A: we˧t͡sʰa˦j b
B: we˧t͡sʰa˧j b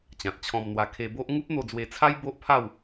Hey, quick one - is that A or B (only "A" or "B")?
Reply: A